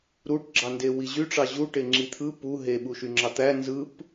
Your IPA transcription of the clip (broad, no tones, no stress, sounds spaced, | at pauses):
ɾ u ʈ ɡ͡ǁ ɑ n d e w i ʑ y ʈ͡ʂ ɑ ʑ u ʈ e ŋ͡ǁ i t̪ʰ ɯ p u ɦ e ɓ u ʃ y ŋ͡ǁ ɑ t̪ æ n z ɯ p